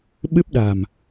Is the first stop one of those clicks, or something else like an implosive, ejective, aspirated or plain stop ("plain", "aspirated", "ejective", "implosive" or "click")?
implosive